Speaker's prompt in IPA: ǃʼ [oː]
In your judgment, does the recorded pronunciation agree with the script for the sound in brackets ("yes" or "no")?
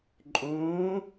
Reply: no